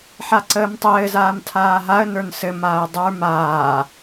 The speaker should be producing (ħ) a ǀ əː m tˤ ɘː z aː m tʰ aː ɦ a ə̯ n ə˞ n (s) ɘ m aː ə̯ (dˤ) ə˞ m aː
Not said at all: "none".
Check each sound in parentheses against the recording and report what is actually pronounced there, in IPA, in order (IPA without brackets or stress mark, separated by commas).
ħ, s, dˤ